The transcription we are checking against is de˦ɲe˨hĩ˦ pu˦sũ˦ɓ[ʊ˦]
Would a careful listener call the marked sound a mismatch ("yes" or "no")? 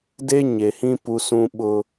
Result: no